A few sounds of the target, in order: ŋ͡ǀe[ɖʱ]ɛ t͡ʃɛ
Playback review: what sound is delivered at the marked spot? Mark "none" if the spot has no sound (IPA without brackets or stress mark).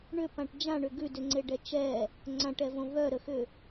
ɖ